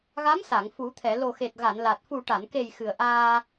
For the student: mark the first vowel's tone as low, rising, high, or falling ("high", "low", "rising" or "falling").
rising